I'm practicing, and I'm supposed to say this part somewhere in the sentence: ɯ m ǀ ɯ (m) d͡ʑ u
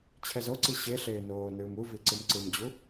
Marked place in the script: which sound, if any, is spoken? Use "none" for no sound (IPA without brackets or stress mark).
m